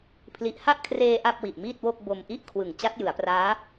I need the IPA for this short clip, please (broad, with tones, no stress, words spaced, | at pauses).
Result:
pʰli˨˩ʔha˥˩ʔkʰreː˧ ʔa˥˩p̚wi˨˩ʔmiː˥˩t̚wo˥˩k̚ bo˧mʔi˥˩ʔkʰwɯ˨˩ŋ t͡ɕa˦˥t̚jɯ˩˦a̯praː˦˥